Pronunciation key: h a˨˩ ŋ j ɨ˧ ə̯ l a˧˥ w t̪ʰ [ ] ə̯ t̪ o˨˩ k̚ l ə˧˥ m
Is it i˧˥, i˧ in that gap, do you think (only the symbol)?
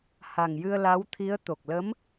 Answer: i˧˥